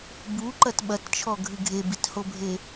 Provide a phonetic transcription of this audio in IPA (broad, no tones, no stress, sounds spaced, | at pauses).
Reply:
b u ǃ ɐ t ɓ ɐ t t͡ʃʰ ɔ ɡʱ ɨ ɡʱ e b i t h o bʱ e